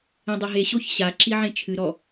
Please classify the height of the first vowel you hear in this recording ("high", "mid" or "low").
mid